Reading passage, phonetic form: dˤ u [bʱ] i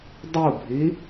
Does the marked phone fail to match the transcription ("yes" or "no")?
no